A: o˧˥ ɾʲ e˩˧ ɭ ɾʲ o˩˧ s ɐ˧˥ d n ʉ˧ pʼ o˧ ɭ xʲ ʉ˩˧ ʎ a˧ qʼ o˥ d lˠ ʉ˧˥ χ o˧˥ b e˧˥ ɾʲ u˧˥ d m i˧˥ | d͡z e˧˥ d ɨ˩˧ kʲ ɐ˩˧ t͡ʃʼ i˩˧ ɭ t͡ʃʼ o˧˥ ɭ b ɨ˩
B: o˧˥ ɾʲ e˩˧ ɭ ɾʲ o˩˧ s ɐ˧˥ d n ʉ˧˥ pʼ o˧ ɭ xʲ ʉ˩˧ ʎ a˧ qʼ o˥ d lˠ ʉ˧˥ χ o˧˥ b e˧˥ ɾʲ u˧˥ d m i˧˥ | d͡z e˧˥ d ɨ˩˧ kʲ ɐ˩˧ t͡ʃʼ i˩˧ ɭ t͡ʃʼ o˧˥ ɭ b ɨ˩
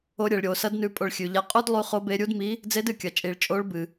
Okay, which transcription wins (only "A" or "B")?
A